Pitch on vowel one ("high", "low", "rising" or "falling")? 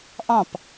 falling